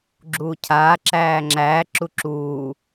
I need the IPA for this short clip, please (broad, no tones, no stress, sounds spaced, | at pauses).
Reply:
ɡ͡ǁ uː cʰ aː ǁ æː ŋ͡ǁ æː ǁ u ǁ uː